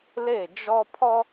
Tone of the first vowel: falling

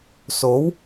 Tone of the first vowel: rising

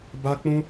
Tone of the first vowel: high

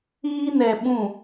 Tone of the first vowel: high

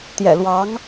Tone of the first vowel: low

